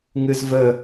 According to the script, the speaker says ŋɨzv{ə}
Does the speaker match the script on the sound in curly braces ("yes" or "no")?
yes